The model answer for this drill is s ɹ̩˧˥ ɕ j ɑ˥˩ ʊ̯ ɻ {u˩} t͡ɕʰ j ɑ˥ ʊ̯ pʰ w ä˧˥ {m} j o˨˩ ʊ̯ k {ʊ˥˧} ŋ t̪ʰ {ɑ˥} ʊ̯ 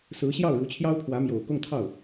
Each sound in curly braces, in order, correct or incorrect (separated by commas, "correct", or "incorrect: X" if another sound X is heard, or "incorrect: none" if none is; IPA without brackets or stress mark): incorrect: u˧˥, correct, correct, incorrect: ɑ˥˩